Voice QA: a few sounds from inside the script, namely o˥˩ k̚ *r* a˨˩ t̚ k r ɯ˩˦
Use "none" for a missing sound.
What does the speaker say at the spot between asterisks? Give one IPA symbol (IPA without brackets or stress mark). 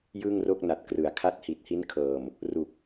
n